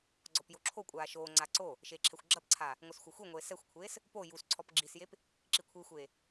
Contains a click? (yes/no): yes